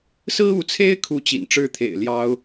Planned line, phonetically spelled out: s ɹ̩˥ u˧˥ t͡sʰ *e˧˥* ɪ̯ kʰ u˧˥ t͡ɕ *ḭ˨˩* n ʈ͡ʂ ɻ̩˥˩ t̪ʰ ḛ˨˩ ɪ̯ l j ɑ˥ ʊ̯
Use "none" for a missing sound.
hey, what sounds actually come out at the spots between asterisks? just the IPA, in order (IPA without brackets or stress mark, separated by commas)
e˥, ḭ˨˩